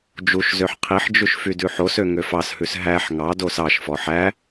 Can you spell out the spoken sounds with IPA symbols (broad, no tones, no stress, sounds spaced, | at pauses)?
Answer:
d͡ʒ u ʃ z ø ħ qʰ i ħ d͡ʒ ʉ ʃ f y d ʉ ħ o s ø ŋ ø f ɑ s h ʉ s ɦ æ ħ ŋ ɑ d o s ɑ ʃ f ɔ ħ æ